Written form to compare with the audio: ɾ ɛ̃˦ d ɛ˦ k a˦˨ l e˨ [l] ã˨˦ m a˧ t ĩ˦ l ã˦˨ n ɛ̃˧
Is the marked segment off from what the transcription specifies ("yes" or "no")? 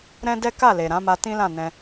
yes